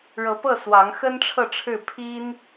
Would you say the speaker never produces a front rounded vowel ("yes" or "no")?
yes